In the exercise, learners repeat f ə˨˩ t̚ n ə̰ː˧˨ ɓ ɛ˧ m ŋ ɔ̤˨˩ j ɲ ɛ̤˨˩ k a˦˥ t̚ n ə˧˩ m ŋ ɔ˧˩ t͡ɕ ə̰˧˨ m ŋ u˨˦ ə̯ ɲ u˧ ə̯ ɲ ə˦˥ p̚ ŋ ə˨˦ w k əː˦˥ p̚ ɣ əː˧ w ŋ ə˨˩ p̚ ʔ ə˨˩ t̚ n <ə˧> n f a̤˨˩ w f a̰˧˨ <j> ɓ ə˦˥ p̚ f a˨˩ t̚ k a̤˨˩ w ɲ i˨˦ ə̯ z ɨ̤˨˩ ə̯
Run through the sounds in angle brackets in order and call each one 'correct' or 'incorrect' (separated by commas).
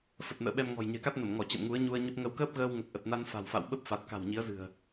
incorrect, incorrect